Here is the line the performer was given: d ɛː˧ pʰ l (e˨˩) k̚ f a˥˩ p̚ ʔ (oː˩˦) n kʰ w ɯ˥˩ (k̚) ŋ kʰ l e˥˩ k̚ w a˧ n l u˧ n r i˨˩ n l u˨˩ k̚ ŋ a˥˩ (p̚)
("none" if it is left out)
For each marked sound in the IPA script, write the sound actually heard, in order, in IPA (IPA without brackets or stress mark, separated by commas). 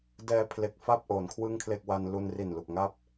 e˨˩, oː˩˦, none, p̚